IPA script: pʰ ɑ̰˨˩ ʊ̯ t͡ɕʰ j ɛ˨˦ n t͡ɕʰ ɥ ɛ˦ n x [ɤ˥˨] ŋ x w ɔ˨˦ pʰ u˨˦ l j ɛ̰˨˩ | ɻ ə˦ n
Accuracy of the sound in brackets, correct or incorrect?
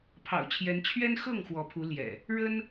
correct